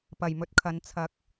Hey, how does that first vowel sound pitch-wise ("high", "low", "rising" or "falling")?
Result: low